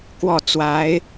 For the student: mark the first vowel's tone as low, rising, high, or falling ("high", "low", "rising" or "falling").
falling